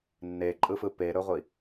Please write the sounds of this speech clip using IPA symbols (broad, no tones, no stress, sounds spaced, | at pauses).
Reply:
nː e ǃʼ ɯ f ɯ p e ɾ ɵ ʁʷ i